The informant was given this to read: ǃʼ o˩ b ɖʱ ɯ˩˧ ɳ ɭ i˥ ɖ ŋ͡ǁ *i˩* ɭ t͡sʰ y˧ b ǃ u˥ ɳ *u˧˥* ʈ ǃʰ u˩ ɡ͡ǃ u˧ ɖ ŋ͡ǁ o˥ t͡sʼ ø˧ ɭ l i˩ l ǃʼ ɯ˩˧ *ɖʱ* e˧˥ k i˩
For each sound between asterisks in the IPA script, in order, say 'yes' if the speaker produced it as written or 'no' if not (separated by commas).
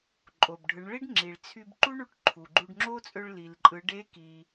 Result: yes, yes, no